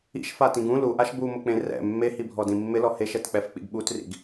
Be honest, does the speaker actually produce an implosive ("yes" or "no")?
yes